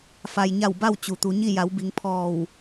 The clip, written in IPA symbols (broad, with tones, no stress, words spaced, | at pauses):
fa˩jɲa˧˩w ba˥˨w t͡ɕu˩t̪u˩˧ɲi˥˨ ja˩˧wbi˩˧ŋ pʰɔː˧˩w